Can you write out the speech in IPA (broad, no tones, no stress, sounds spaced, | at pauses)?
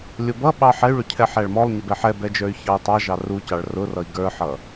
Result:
lʲ ʊ b ʌ ɓ ɑ ħ ɛ y̯ ɭ ʊ cʰ ɛ ħ æ ɭ m ɔ lˠ ɲ ɪ b ɛ ħ ɛ b ɛ d͡ʒ ə˞ y̯ ç ɑ u̯ tˤ ɑ ʒ ɑ r u c ɑ ɭ r ʊ r ʌ i̯ ɡ ə˞ ħ ʌ